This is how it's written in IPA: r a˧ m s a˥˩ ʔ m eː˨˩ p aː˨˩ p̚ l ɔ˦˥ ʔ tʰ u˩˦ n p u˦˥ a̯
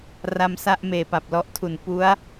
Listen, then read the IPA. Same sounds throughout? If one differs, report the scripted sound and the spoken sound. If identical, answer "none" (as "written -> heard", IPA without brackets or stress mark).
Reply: aː˨˩ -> a˨˩